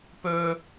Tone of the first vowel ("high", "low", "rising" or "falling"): high